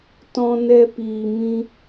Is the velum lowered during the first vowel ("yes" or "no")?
yes